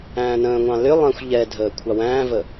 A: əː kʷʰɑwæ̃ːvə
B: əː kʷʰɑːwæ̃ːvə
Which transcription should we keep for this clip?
A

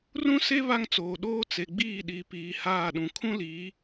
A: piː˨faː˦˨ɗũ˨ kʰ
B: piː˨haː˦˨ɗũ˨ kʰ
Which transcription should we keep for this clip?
B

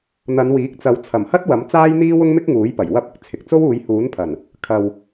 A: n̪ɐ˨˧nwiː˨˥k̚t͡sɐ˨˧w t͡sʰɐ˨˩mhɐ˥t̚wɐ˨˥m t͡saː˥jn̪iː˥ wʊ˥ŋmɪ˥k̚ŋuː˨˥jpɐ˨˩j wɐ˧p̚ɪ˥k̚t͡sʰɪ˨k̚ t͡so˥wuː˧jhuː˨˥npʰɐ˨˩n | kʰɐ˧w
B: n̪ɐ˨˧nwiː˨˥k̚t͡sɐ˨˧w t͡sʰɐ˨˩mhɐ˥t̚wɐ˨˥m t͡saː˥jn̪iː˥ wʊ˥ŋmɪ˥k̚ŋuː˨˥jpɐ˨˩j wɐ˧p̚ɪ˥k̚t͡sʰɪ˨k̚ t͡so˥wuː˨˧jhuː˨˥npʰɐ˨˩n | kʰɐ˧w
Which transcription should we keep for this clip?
B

